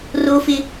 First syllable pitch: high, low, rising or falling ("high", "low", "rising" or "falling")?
high